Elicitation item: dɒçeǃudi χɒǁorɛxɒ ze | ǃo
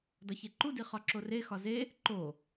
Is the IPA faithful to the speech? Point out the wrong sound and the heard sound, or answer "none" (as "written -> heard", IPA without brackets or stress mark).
ɛ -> e